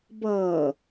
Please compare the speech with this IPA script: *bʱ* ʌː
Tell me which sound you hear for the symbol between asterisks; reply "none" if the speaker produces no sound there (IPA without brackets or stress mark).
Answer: b